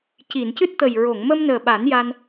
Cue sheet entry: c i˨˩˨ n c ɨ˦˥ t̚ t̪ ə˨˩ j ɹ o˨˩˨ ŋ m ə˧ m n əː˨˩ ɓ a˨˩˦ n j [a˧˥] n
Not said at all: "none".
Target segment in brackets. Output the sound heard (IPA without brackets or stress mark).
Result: a˧